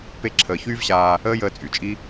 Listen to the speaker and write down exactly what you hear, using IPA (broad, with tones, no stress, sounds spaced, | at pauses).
p e˧ ǁʰ əː˨ ç yː˦ v ɕ aː˧ | əː˦ j əː˧ t͡sʼ y˨ t͡ʃʼ i˦